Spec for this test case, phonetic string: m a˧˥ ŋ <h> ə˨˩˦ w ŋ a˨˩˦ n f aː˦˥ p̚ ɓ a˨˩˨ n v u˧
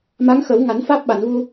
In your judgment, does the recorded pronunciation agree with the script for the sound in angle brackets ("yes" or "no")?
no